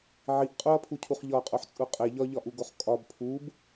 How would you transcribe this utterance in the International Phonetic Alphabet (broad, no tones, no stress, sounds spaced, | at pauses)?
ʕ i ʔ qʼ u ɐ̯ pʰ u cʰ u χ ʎ ɒ qʼ o ħ t͡sʼ u qʼ e ʎ ɒ ʎ ɒ ʔ u ɡ o χ kʼ ɒ b pʰ u b